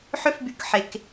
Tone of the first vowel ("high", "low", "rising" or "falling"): high